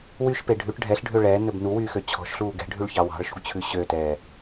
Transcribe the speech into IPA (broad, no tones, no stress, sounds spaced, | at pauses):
w y ʃ p e ɖʱ ʉ ʈ ɖʱ ɛ ɬ ɖʱ ø ɭ ɛː n ɵ b n u w yː x ø t͡ɕʰ ɔ̤ ʃ ɬ uː ɡ ɛ̤ ɖʱ ʉ ɭ ç ɑ w ɑ̤ ɭ ʃ ṳ ɡ t͡ɕʰ ʉ ɕ ø t ɛː